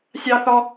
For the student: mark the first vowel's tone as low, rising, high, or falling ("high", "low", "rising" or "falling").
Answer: high